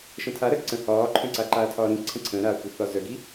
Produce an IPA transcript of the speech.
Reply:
ʃ ə̃ tʰ a ɾ ə ǀ ə̃ h ɒː ǃʰ œ̃ ǀ a ǃ aː tʰ ɒː ɾ ĩ ǀʰ ə̃ ǀʰ ə̃ː ɾ aː kʷ i θ ɒ z œ ɡ i

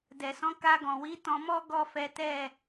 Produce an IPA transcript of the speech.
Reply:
d ɛ˨ s ɔ̃˨˦ k a˧ ɡ ɔ̃˨ w i˨˦ t ɔ̃˧ m ɔ˦ ɡ ɔ˦˨ f ɛ˨˦ t ɛ˦˨

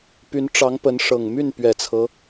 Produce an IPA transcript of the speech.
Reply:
p y˧˥ n ʈ͡ʂ ɑ˧˥ ŋ p ə˧˥ n ʂ ɤ˨˩ ŋ m y˥˩ n p ɥ ɛ˨˩ t͡sʰ ɤ˦

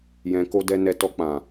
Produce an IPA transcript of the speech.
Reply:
j ɛ̃˧ k o˦ d ɛ˧ n ɛ˧ t ɔ˧ k͡p ã˨

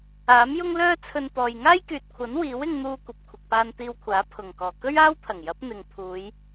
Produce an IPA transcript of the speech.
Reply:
aː˨˥ m j ʊ˥ ŋ l œː˥ t͡sʰ ɵ˧ n t̪ ɔː˨ j ŋ aː˥ j k yː˨ t̚ kʷʰ ɐ˨˥ n w iː˨˥ w ɪ˧ ŋ n̪ uː˧ kʷ ɐ˨ p̚ kʷʰ ɪ˨ k̚ p aː˧ n t̪ iː˧ w kʷʰ aː˨˥ pʰ ʊ˨˩ ŋ k ɔː˨˩ k ɵ˥ ɥ aː˥ w t̪ʰ ɐ˨˩ ŋ j ɐ˨˥ p̚ n̪ ɪ˨ ŋ pʰ uː˨˧ j

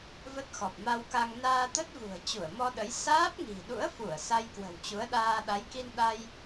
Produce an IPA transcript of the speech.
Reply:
v ə˦˥ t̚ x ɔ˨˩ p̚ m a˧ w k a˧ ŋ n aː˧ t̪ ə˦˥ t̚ v ṳ˨˩ ə̯ t͡ɕ u˧˩ ə̯ m ɔ˧ ɗ ə˨˦ j s aː˦˥ p̚ ŋ i̤˨˩ ɗ ṵ˧˥ ə̯ f u˧˩ ə̯ s a˧ j k w ə̤˨˩ w t͡ɕ u˨˦ ə̯ ɗ aː˧ ɗ a˨˦ j k i˧ n ɗ a˧ j

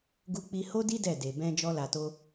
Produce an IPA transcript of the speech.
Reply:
ɡ u˧ k͡p i˧ h o˦ d i˦ d ɛ˦˨ d e˨ b ɛ̃˧ d͡ʒ ɔ˦ l a˧ t o˦

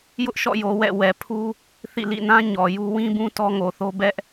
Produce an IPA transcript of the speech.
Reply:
j ʊ˦ ʔ ʃ ɔ̰˦˨ j o˨ w ɛ̰˦˨ w ɛ˨ pʰ u˦ | θ ḭ˦˨ l ḭ˦˨ n ã˦ ɲ ɔ˨ j u˦ w ĩ˦ b ũ˦ t ɔ˦ ŋ o˨ θ o˦ b ɛ˦ ʔ

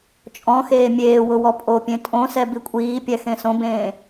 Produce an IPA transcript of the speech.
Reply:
t͡ʃʼ ɔ̃ x eː mʲ eː w ʊ w ɔ pʼ o pʲ ẽ tʼ õ s ɛ b i kʷʼ iː pʲ ɛ x ẽ s õ b ẽː

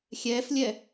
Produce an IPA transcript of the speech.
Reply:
xʲ ɛː f lʲ ɛ

